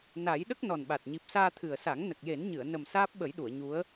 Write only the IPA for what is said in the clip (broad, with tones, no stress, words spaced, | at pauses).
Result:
na˨˩˦j ɗə˦˥k̚nɔ˨˩nɓa˨˩t̚ ɲi˨˩p̚saː˧ t̪ʰɨ˨˩ə̯sa˨˩˦ŋ nə˨˩k̚je˨˩˦nɲɨ˨˩˨ə̯ nə˨˩m saː˦˥p̚ɓə˨˩˦jɗu˨˩˨ə̯ ɲu˧˥ə̯